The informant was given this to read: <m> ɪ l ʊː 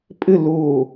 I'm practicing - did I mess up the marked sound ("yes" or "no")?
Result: yes